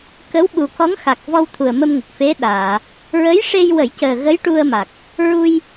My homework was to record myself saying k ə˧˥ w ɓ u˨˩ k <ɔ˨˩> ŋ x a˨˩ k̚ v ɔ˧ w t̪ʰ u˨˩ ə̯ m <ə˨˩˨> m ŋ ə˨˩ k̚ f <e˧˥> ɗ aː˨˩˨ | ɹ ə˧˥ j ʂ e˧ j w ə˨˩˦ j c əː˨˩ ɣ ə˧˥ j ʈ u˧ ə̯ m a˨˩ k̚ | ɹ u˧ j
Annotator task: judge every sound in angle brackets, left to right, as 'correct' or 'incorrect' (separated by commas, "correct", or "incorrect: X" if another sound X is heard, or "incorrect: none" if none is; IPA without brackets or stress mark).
incorrect: ɔ˧˥, incorrect: ə˧, correct